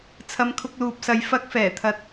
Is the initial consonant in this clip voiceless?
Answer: yes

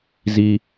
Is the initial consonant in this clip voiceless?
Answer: no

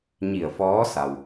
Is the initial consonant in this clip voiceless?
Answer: no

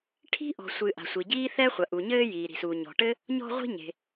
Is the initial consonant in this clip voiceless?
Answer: yes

